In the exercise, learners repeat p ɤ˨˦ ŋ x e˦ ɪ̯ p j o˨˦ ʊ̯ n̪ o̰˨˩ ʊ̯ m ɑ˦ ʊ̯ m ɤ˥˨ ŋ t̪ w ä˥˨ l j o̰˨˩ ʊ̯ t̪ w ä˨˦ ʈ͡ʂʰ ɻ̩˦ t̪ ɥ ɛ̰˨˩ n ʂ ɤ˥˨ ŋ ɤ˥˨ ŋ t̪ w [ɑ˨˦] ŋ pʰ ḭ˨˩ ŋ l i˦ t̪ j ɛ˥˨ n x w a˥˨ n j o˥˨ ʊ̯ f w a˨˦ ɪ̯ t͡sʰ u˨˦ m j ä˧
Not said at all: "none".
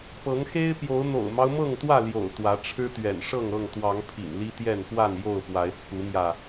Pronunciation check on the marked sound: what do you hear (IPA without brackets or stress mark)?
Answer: ɑ˨˦